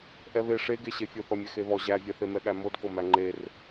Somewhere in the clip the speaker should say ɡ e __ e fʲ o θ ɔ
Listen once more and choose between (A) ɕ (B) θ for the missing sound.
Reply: A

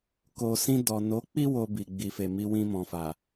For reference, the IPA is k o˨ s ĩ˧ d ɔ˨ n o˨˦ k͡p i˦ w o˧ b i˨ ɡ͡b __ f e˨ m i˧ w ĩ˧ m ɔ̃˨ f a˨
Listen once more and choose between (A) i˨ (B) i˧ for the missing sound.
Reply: A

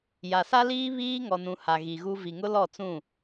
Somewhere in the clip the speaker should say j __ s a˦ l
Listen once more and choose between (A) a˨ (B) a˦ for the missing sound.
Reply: A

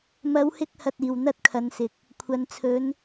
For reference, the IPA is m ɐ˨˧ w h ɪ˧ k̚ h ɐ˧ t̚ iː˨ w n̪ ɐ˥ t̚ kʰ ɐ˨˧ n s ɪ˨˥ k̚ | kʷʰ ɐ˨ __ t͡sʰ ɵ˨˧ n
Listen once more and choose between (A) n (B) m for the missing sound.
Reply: A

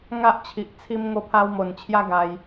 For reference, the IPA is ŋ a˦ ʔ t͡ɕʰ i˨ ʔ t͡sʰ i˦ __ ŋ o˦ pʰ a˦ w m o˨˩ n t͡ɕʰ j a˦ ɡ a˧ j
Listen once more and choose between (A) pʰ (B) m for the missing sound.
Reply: B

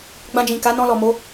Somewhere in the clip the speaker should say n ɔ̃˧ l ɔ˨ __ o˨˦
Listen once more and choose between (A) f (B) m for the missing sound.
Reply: B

